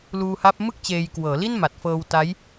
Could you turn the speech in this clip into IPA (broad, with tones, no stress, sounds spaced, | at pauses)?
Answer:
l uː˧ h a˦˥ p̚ m ɯ˥˩ k̚ t͡ɕ eː˧ j k w ɤː˩˦ l i˥˩ n m a˨˩ t̚ f ɤː˧ w t a˦˥ j